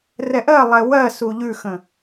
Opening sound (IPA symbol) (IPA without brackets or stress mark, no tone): r